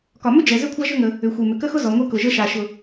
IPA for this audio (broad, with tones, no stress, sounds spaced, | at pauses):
k ɒ˩ m ʏ˥ d͡ʒ ɛ˩ z ʏ˥ kʷʰ a˥ ʒ ʏ˥ ŋ ə˩ | ʏ˩ xʷ e˩ m ʏ˩ k ə˥ x ʊ˥ z ɔ˩ ŋʷ e˥ k ʊ˩ ʒ ə˥ ʃ a˩ ʃ ʊ˩